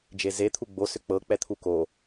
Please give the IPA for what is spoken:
d͡ʒeze t̪ʰuɡ͡bo sʏk͡pɤ k͡pɛt̪ʰuko

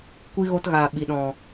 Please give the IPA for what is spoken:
kʷi˧ ɣo˧tɣaː˨ɓi˨ ɗɔ̃˨

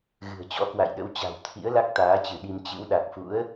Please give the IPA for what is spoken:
ɣɨ̤˨˩ə̯t͡ɕɔ̰˧˥kwa̰˧˨jɗə̰˧˥w t͡ɕa̤˨˩wt̪ʰḭ˧˥ə̯ la˦˥k̚t̪aː˨˦t͡ɕɨ˧˩ ɗi˧m t͡ɕɨ̰˧˥w ɗa˨˩k̚fṵ˧˥ə̯

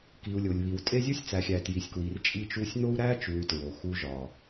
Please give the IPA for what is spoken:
ki˨u̯lʲo˨lʲβi˨w tʼe˦zʲu˦sʲt͡sæ˨xʲæ˨ tji˨sʲkwi˨rt͡ʃʼi˦t͡ʃu˦sʲ n̪o˦u̯ɾæ˦t͡ʃu˨y̯ tɹo˨xu˦ʒɒ˨

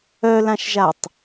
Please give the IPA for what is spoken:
œlãʃʒatˤ

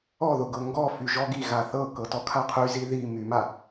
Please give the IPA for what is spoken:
ɔðʊɡɤ ŋɡɔ fyʒɔɡi ɣaθɤkɤtɔ kʰaqʰyzi ði myma

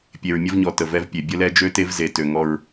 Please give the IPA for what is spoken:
pʲe˨ɹmʲə˦vɲɔ˨ tə˨vɛ˦vpʲe˨ bʲə˦lɛ˦d͡ʒø˦te˦v ze˨ tø˨ ŋɔ˦ɹ

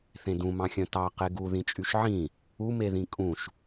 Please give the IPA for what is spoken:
θẽdũmɑ̃xʲœ̃ tɑ qeɡu ðĩt͡ʃʼyʃʕĩ | umeðĩ kʼũʃ

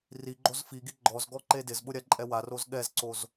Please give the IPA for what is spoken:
riɡ͡ǃoz fiɡi ɡ͡ǃɔzɡɔ ǃedɪzɓʊ ɾʲaǃʼɛwaroz ɠɛzǀoz

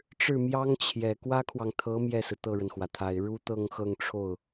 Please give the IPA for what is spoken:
ʈ͡ʂɻ̩˥˩mjɑ˥ŋt͡ɕʰjɛ˨˩ kwä˥kʰwɑ˨ŋt̪ʰɤ˧˥ mjɛ˥˩sɹ̩˩ t̪ɤ˥˩ɻə˩nxwä˩t̪ʰa˨˩ɪ̯ ɻu˥t̪ɤ˥˧ŋxɤ˥˧ŋʈ͡ʂʰo˥˩ʊ̯

